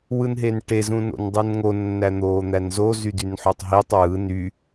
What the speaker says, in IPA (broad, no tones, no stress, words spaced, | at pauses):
wɯnɦenʈe zũno̰ndˤɯnŋo nːæn̪oːn̪ænzo zydynħotˤɦitˤ wɯ ny